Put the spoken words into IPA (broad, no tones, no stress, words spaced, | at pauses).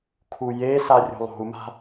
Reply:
kʰujesa rʲo̤lˠo̤u̯ma̤